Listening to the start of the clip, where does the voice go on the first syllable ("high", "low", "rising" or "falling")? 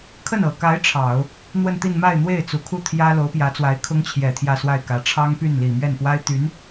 falling